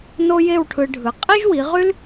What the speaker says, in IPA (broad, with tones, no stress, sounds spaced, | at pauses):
n o˥ j e˥˧ w ʈʰ ɯ˧ ɖʱ ɯ˩˧ qʼ i˥ ʒ w i˩˧ ʁ y˥ l